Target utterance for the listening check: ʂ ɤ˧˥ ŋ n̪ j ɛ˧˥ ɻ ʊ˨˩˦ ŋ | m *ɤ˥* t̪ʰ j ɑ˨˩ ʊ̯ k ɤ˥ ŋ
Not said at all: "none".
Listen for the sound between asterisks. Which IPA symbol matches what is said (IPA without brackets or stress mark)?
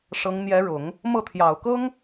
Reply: ɤ˥˩